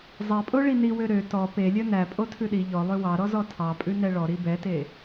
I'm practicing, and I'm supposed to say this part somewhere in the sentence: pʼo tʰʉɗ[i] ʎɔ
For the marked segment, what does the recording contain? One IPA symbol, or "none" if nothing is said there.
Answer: i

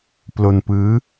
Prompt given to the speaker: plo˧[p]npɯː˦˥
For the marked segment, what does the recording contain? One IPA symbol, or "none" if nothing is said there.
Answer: none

